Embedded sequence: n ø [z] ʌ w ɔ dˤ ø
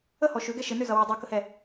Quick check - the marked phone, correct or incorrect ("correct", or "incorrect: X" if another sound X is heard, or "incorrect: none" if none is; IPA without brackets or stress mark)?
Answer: correct